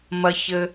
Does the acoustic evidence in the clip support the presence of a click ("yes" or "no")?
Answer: no